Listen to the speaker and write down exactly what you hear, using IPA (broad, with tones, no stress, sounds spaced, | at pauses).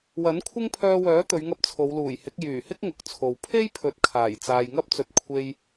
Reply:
w ɐ˨˥ n kʷʰ ɪ˥ ŋ pʰ œː˧ w œː˨˥ t̪ ɵ˨˧ ɥ ŋ ɐ˧ p̚ t͡sʰ o˨˧ w l uː˨˩ j h ɪ˨˥ k̚ j yː˨˩ h ɪ˥ k̚ ŋ ʊ˨˥ k̚ t͡sʰ o˨ w pʰ e˥ j pʰ ɵ˨ t̚ kʰ aː˨˩ j t͡s aː˨ j ŋ ɐ˥ p̚ t͡s ɵ˨ t̚ kʷʰ e˧ j